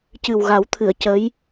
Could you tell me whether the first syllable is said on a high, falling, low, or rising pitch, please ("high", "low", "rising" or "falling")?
low